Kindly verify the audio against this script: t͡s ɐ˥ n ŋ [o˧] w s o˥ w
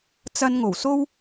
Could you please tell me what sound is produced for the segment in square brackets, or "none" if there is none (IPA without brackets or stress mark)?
o˨˩